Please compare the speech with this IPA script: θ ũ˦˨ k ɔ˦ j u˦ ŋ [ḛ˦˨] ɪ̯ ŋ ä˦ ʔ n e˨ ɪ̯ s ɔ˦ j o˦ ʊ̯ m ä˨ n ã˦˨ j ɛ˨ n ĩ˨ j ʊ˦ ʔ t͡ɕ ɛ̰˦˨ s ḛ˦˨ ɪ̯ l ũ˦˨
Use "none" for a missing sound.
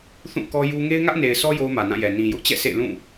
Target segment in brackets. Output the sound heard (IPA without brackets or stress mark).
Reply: e˦